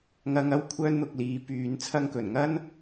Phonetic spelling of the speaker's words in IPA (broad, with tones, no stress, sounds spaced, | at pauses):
ŋ ɐ˧ ŋ ɐ˥ w kʷʰ œː˥ n n̪ ʊ˧ k̚ l iː˨˧ p yː˧ n t͡sʰ ɐ˥ ŋ k ɵ˨˩ n ŋ ɐ˥ n